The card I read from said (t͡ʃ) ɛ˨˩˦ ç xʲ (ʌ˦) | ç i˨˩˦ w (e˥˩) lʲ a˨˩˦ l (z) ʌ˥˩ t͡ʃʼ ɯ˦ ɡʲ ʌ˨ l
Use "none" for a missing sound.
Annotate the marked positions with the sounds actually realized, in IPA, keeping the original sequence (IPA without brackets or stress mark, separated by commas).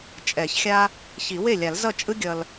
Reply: t͡ʃʼ, a˦, e˥˩, z